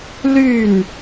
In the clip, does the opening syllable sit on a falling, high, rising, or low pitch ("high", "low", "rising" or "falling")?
falling